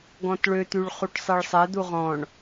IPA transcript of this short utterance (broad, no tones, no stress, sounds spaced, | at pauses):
ɡ ɔ̃ t ɭ ø t̪ y ɭ χ u ʈ sˤ ɛ ɭ sˤ ɛ d̪ u ʁ ɔ̃ ɳ